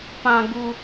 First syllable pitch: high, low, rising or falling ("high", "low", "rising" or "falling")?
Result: low